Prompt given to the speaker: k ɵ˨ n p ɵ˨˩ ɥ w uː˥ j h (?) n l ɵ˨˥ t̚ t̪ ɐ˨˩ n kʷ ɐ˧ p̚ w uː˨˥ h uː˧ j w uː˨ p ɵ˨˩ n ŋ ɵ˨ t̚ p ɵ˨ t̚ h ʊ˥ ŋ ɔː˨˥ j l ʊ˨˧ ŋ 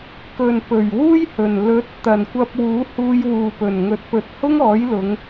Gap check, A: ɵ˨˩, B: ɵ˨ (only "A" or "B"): A